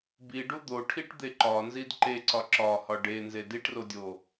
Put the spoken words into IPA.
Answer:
biɖu d̪oʈʰiʈd̪e ǃɒnzid ǃeǀɒ ǁɒhɒ ɖenze diʈrodʲo

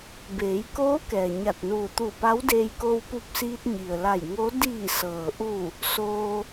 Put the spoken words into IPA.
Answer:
beː˩˧jkoː˧˥ kɛː˩ɲa˧˩t̚nuː˧˩ t̪u˧˩pa˧˥wdeː˧j ko˧wpu˧p̚siː˧t̚ ɲi˩ə̯la˧˩jŋo˧˥ diː˧˩sɤː˩ʔu˧˩ | soː˧

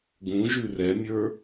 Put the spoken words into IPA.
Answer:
ɡũʒʉ rɛmʲə˞

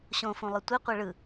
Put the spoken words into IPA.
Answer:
ɕõfũlˠɯ tʷi qʷiɭɯ

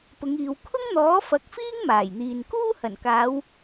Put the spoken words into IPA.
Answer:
pʊ˨˧ŋiː˨w kʰʊ˥ŋn̪ɔː˨˥ fɐ˨˥k̚fiː˥ŋ maː˨˩jn̪iː˨nkuː˥ hɐ˨˩nkaː˨˧w

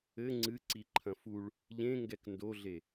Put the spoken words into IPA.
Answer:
ɘ ŋ͡ǀɨǀiǃʰɐ̃ fuɭ | ʎẽŋɡɛk ndoɮe

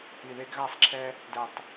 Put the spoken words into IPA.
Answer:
i˨ðe˦ɡɣa˦sˤǁʰɛ˦ | dɛ˨tˤ

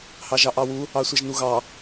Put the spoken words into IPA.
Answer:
hɑʒɑʔɑwu | ɑsʷɛʒnuɣɑ

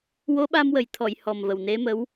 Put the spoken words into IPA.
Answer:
wo˧˥ɓa˧mwə˨˩jt̪ʰɔ˨˩˨j hɔ˨˩mvə˨˩wne˧˥mə˧˥w

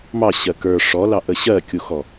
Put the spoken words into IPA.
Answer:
mɑɕɜ kə˞ ʂɔlɑʔə ɕɜkʲuxɔ

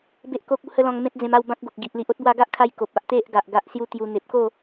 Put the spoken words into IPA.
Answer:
be˦ʔko˦k̚ u˧hə˦lɔ̃˧ŋ mẽ˦t̚d͡zẽ˧ma˥˧w bã˦k̚ ɡo˨k̚ ɡi˨ʔli˨ʔ o˦t̚bwa˧ɡa˦ʔkʰa˧j ko˨p̚a˦ʔt̪e˦ʔ ɡa˨ʔɡa˦ʔsju˦t̪ju˧ n̪e˨p̚ko˥˧

